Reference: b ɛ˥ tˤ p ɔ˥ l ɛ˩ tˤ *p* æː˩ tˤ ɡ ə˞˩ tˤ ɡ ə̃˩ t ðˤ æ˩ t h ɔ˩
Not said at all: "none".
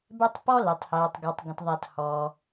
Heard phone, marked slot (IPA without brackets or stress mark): h